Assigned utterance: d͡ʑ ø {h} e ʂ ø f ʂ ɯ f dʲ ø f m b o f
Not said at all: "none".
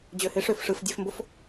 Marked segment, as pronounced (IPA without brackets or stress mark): h